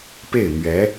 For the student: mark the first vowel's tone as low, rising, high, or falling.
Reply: falling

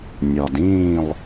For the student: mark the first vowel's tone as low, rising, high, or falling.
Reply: low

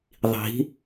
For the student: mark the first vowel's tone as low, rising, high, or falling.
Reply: rising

